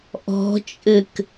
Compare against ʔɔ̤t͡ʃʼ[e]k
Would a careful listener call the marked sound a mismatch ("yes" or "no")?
yes